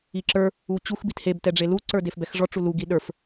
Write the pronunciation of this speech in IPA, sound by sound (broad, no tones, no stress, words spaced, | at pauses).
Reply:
iǁə˞ | ut͡ɕux bitheb tɛɖ͡ʐelu ǀə˞defbɛxʐɔ ʈ͡ʂulu ɡiɗə˞f